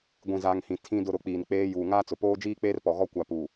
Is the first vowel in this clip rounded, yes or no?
no